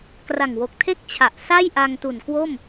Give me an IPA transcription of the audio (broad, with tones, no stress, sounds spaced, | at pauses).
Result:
k r a˨˩ ŋ w o˨˩ k̚ tʰ e˥˩ k̚ t͡ɕʰ a˨˩ ʔ s a˥˩ j ʔ a˧ ŋ t u˨˩ n k w o˥˩ m